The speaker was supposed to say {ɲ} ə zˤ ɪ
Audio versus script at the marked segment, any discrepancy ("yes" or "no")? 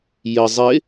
yes